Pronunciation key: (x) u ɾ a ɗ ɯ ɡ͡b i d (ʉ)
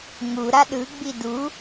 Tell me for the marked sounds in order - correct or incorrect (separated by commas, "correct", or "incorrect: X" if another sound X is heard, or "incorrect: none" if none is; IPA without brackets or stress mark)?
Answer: incorrect: ŋ, incorrect: u